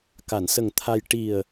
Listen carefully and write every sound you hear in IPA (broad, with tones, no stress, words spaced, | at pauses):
ka˨˩˨nsə˨˩ŋ t̪ʰa˧j ʈi˨˩ə̯